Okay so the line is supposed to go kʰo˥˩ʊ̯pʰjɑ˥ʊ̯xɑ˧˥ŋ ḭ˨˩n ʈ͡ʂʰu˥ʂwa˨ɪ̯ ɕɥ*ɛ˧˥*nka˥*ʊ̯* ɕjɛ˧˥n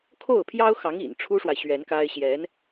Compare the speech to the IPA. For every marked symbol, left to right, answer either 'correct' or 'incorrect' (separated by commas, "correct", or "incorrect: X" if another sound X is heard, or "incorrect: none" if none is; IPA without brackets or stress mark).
correct, incorrect: ɪ̯